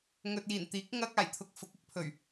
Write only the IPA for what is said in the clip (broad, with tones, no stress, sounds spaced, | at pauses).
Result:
ŋ ɵ˨ t̚ j iː˨˩ n t̪ iː˨˥ k̚ ŋ ɐ˥ k̚ aː˨˩ j t̪ʰ ʊ˧ k̚ f ʊ˨˥ k̚ ɪ˨˥ k̚ pʰ ɵ˨˩ ɥ